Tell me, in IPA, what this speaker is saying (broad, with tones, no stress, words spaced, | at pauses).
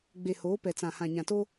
ɡ͡be˨hoː˨˦pɛ˨ t͡sã˨hã˨ɲã˨to˦